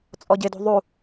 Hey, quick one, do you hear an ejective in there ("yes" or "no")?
yes